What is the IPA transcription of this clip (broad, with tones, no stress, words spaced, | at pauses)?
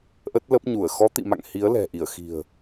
ʔə˦˥t̚lə˦˥p̚ ɲu˧˩ə̯ xɔ˨˦t̪ḭ˧˨ma̰˧˨ŋ hi˨˦ə̯lɛ̤˨˩ʔi˧˩ə̯ xi̤˨˩ə̯